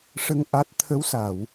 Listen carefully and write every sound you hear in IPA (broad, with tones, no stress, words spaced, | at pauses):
ʂə˧ŋ ʔa˦˥t̚ t̪ʰə˧˥wsa˨˩˨w